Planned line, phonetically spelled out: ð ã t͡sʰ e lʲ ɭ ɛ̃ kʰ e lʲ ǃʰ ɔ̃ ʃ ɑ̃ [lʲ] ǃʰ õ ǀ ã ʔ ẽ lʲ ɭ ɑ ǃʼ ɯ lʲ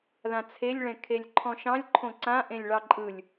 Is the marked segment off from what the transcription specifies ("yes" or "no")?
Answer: no